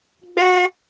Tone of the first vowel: high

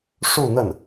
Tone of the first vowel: falling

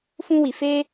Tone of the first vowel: high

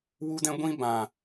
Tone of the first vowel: high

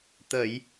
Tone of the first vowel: low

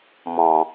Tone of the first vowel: low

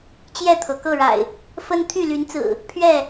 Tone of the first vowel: falling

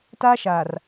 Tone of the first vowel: high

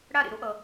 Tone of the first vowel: falling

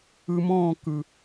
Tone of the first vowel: low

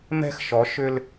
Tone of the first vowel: high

